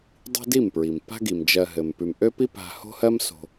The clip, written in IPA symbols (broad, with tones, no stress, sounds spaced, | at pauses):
dˤ i̤˦ d i˦˨ m p ɹ i˨ m p a̤˦ ɡ i˨ m d͡ʒ ɜ˧ ɦ ɘ˨ m p ʉ˨ m ʔ ø˦ p i˦ p a̤˧ h o̤˦ h ɜ˦ m s o̤˧